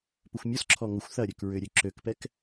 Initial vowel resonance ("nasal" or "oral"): oral